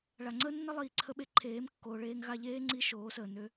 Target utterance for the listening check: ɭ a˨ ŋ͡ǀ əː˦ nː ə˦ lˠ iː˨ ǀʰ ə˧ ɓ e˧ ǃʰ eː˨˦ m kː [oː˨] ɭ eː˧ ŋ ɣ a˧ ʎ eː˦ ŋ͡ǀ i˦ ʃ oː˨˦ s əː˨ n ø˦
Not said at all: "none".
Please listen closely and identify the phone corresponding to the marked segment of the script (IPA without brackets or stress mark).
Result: oː˨